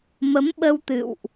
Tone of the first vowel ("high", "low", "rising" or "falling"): rising